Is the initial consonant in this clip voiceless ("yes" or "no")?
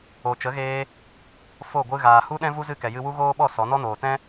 yes